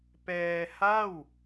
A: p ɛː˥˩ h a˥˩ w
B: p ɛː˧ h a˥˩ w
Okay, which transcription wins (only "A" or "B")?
B